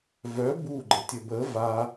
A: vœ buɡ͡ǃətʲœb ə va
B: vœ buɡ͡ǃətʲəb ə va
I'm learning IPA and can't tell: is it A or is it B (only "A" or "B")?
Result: B